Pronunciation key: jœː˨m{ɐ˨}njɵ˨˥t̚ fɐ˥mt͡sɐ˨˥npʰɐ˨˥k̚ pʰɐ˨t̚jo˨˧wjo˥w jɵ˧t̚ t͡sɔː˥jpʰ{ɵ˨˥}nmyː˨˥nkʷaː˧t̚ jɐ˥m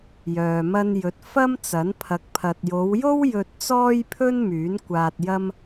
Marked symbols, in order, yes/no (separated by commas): no, no